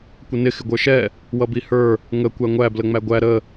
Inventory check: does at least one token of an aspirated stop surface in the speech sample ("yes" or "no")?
no